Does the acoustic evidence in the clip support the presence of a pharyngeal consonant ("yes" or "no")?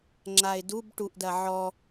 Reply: yes